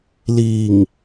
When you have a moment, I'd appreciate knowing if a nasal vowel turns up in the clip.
no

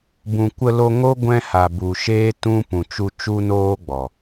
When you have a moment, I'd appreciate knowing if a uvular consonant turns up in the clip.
no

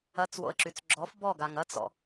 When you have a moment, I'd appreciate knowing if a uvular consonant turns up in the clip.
no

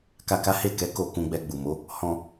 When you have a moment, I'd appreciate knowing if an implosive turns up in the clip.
no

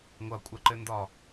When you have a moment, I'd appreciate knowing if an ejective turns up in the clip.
yes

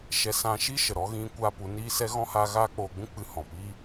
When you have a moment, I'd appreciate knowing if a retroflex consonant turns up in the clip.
no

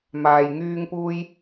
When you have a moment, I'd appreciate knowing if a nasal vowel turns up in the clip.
no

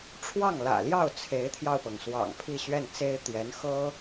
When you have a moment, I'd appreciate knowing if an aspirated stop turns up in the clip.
yes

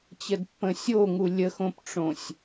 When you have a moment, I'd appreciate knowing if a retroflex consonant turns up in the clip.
yes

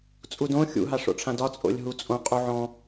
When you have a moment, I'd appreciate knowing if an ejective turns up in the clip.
yes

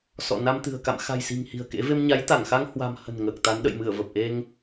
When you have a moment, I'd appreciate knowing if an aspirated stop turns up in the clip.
no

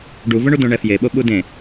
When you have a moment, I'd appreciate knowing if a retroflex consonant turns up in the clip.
yes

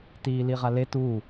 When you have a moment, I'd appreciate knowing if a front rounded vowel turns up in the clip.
no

